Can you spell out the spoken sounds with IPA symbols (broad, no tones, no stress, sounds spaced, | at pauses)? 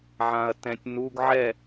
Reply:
ʕ ã ɐ̯ t ɛ̃ tʲ n u ɡ ʕ ɛ